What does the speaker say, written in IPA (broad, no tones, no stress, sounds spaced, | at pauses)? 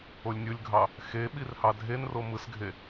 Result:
o lʲ nʲ ɯ lʲ ɡʱ ɑ | x e ɓ i r h ɑ dʱ e n r o m ɯ s ɡʱ e